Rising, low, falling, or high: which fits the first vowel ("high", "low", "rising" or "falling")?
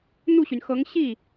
falling